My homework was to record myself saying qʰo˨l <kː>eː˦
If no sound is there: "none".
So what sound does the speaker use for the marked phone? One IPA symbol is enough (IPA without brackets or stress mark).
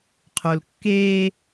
kː